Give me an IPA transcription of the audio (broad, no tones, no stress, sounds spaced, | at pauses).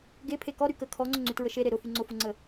ɡ e pʰ e k ɔ ɾ y k ə kʰ ɔ ŋ͡ǀ ʊ ŋ͡ǀ y t ɹ ə ʃ e ɾ e ɾ ʊ f y ŋ͡ǀ ʊ f ʊ ŋ͡ǀ ə